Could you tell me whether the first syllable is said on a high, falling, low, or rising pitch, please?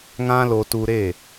high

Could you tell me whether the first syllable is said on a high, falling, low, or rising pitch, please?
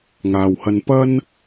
low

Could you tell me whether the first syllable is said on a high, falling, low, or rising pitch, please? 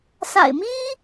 low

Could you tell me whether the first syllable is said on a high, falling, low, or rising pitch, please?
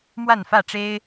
falling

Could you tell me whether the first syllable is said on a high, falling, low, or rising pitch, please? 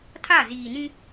falling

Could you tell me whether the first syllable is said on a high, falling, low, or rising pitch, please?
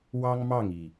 high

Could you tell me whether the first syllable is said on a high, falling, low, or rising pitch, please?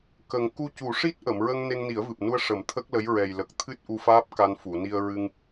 low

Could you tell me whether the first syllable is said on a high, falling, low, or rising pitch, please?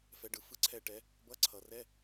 rising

